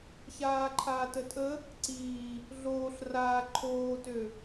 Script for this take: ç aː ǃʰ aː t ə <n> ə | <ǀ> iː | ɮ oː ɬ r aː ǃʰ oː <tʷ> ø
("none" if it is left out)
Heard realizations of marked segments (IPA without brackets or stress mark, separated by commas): tʼ, ǀ, t